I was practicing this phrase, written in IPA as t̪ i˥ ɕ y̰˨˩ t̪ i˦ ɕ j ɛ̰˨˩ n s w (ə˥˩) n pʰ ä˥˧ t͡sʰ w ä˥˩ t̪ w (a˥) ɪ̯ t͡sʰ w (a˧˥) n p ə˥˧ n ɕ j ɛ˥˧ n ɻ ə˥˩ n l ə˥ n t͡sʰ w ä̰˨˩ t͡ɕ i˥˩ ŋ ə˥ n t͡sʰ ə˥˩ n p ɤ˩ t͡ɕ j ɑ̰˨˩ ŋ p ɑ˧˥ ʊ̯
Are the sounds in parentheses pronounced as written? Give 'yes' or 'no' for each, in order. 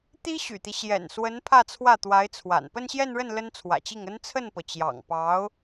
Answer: no, no, no

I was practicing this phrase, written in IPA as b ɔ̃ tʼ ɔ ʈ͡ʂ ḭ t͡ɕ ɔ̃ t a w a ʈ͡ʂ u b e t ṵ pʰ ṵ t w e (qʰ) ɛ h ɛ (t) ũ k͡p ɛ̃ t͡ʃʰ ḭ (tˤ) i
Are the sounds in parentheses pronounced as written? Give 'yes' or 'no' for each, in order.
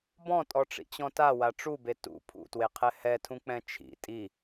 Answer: yes, no, no

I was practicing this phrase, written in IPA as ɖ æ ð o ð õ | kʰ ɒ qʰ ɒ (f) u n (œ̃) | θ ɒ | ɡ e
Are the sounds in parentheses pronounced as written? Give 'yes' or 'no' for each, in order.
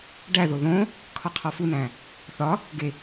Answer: yes, no

